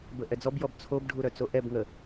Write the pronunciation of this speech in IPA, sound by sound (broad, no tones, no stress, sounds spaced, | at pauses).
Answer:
b ə ʔ ɛ d͡z ɔ b j ɔ b t͡sʰ o b ɖʱ u ɾ œ t͡s o ʔ ɛ b ŋ ə